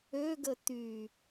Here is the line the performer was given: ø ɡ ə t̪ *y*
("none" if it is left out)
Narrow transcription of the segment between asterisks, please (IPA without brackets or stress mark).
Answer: y